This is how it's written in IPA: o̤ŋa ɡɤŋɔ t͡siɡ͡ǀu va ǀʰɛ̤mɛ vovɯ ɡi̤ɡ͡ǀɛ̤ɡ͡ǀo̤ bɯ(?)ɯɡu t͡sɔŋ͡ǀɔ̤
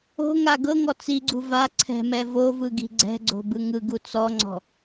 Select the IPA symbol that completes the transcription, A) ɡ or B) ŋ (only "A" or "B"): B